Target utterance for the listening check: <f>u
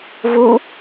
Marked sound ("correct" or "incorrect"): incorrect